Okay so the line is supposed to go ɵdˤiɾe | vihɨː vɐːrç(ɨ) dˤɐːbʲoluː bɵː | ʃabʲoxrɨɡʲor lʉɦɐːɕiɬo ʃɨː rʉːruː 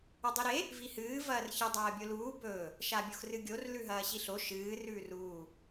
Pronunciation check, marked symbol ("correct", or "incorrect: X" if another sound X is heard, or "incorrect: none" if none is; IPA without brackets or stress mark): correct